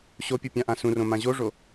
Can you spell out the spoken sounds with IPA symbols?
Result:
ɕopʲu pʲãʔãsũrõ mãʑoʐo

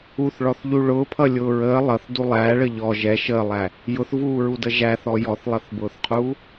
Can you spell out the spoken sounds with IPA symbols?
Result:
uθɭɔθʎu ɭʊːpʰʌlʲʊː ɹəː lˠʌθdu lˠæːɭə ʎɔ ʒɛ ʃəːlˠæ | jʊθvuːɹudə ʒæθɔ jɔθlˠʌθbʊːθqʰuː

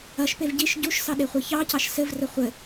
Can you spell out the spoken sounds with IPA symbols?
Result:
ɐʃpev ɟiʃ ɟuʃsɑɗeχʷe çɑcɑʃ sɘvrɘ χʷɘ

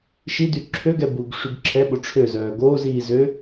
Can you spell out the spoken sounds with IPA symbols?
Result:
ʃidy ǁʰøɡɛ buɡʂyɡ ǁʰɛɓo ʈ͡ʂʰøzœː ɡoːziː zø

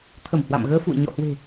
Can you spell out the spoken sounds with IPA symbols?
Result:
t̪ʰə˧˩mhwa̰˧˨mɣəː˧fṵ˧˨ə̯ ɲɔ̰˧˨hwe̤˨˩

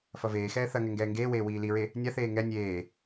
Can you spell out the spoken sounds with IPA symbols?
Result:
fɐveːxɛː θɐŋɛ ŋɡɛːŋɡeːweː wiːliɹe | nʲaθeː ŋɛ nʲeː

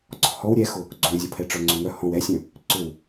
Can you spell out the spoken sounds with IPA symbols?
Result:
ɡ͡ǀɔ̤hɔw ɾʲɛxʊ | ɡ͡ǀõzʲopʰɛ ʈ͡ʂœŋ͡ǀʏŋœ hɔ̃w ɛsʲœ̃ | ǀʏw

